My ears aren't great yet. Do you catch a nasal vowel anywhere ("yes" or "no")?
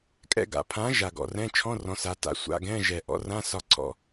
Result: yes